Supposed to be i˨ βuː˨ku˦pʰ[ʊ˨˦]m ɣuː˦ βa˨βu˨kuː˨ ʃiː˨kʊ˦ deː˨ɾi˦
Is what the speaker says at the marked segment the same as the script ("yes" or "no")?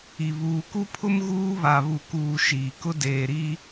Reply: no